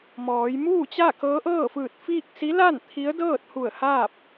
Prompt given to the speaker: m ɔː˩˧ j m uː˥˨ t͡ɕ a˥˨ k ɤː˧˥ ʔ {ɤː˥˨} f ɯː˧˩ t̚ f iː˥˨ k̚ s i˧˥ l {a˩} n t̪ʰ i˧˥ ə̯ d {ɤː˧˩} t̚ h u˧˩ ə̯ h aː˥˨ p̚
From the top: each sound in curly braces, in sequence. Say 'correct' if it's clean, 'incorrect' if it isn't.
correct, incorrect: a˥˨, incorrect: ɤː˥˨

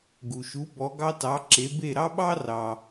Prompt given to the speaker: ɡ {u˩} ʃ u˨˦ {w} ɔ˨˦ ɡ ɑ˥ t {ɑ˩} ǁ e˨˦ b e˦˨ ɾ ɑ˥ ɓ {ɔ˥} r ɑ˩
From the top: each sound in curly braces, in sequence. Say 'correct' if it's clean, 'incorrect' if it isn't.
correct, incorrect: b, incorrect: ɑ˨˦, incorrect: ɑ˥

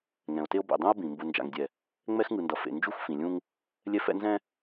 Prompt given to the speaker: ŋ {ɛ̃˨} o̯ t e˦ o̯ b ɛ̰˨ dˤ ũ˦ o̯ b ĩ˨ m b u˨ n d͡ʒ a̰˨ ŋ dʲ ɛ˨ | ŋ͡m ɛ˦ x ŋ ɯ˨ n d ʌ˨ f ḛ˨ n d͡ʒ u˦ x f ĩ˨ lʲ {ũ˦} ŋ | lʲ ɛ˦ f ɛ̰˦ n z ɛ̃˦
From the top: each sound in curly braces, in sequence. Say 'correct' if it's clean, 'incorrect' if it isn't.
correct, correct

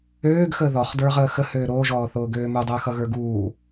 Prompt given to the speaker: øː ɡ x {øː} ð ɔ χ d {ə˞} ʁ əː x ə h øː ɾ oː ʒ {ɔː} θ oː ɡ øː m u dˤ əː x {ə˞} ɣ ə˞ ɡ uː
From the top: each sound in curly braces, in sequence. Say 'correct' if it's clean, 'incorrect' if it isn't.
incorrect: əː, correct, correct, incorrect: ʌ

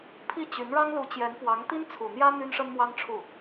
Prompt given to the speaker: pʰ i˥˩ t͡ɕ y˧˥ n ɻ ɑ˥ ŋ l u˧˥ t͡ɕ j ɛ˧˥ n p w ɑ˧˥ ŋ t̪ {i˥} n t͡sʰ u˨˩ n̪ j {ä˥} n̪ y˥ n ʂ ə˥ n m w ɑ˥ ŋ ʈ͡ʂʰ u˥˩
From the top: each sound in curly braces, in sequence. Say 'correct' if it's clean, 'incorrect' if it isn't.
correct, correct

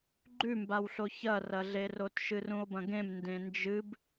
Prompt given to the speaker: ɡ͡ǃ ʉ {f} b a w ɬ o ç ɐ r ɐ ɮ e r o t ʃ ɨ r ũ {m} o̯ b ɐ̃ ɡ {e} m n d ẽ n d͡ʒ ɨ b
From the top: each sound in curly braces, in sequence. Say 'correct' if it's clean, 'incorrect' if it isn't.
incorrect: m, incorrect: none, incorrect: ẽ

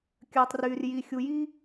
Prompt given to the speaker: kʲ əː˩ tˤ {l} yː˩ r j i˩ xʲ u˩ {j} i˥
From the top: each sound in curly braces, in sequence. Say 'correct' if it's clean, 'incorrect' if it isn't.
incorrect: r, correct

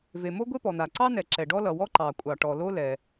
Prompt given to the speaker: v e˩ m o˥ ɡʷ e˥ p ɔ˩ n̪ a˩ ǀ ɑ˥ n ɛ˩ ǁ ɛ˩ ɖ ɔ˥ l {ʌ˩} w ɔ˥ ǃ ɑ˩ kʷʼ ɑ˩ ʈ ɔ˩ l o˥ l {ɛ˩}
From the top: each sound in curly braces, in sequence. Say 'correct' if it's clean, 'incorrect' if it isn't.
correct, correct

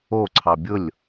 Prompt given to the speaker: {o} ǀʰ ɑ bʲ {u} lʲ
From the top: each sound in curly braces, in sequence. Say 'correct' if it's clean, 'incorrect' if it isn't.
correct, incorrect: ʊ

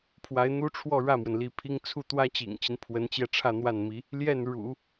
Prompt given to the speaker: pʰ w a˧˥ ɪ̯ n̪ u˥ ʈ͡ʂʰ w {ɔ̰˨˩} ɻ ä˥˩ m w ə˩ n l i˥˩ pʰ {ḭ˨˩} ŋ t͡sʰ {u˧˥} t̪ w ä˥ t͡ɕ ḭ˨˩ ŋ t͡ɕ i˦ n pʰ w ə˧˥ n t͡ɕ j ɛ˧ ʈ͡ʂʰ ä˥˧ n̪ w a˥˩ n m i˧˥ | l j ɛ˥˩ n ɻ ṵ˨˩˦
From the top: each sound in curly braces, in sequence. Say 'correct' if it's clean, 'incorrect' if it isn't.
incorrect: ɔ˥˧, incorrect: i˥, incorrect: u˥˩

